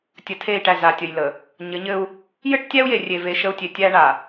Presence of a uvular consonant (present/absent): absent